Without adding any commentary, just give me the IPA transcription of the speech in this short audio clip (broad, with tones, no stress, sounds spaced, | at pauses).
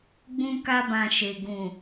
ɡ͡b ũ˧ k a˧ b ã˨ ʃ e˨ ɡ ũ˨